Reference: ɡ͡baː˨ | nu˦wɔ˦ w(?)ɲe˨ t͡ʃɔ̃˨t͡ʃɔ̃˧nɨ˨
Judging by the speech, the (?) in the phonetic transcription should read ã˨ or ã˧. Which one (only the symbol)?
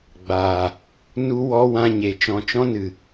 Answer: ã˧